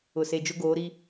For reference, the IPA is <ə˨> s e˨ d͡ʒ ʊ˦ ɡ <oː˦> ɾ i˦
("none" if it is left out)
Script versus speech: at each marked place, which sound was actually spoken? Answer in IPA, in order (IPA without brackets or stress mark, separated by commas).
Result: ʊ˨, oː˨˦